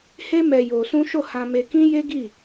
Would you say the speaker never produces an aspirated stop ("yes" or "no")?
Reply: yes